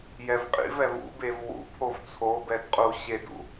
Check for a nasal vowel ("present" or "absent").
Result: absent